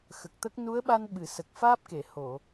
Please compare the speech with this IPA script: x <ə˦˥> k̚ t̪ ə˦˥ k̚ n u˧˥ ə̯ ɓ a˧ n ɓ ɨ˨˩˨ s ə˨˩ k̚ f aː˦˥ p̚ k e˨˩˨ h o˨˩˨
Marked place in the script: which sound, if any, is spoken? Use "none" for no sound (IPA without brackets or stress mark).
ə˨˩